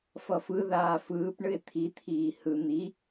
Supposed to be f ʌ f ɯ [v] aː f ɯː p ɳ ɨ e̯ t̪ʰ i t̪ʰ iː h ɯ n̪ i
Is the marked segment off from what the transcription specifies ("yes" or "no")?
yes